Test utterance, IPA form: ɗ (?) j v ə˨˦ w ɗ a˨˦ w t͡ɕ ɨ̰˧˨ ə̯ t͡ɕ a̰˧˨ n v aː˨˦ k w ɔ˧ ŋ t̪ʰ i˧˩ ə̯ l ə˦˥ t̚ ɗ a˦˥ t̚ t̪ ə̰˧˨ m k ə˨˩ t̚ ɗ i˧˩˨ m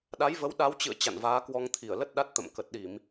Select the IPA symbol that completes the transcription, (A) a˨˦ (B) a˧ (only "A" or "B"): A